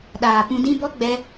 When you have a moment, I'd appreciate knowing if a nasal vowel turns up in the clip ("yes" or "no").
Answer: yes